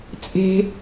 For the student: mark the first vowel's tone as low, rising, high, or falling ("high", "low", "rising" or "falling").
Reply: low